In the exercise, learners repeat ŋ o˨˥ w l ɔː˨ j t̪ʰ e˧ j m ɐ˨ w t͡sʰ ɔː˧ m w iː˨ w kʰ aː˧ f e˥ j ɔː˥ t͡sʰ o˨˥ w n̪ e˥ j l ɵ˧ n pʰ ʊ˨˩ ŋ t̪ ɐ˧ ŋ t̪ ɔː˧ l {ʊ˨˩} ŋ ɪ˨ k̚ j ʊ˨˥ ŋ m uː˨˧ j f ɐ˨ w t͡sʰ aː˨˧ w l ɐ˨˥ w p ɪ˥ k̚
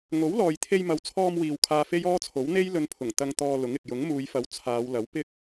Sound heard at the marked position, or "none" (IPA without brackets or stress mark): ʊ˨˥